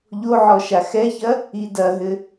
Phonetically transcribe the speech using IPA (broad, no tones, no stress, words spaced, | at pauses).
ʎoʕɔ ʃaxɛçɐ | idɐɦɘ